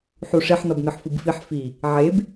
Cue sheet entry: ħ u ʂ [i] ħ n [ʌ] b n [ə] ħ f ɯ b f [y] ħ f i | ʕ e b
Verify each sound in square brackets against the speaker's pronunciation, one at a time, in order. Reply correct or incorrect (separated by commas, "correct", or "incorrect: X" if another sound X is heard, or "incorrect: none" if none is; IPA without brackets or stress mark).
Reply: incorrect: e, correct, incorrect: ɯ, incorrect: i